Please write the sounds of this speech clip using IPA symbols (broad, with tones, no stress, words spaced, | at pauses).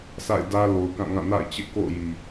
sʰa̰˦˨ɪ̯ dä˦ lo˨ʊ̯kã˦˨ŋã˦˨ na̰˦˨ɪ̯t͡ɕɪ˦ʔko̰˦˨ʊ̯ ji˨